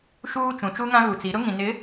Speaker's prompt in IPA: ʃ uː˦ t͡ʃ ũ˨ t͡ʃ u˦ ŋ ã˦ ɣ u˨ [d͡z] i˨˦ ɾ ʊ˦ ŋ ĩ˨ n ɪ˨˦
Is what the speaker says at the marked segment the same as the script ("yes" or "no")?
no